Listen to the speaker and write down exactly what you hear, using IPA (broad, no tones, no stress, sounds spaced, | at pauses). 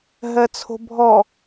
ɦ ɜ t͡sʰ o̤ bʱ ɔ